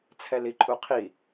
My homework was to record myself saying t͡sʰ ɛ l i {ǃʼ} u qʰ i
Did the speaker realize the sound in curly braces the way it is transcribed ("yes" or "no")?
yes